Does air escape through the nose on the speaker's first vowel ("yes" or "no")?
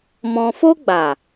yes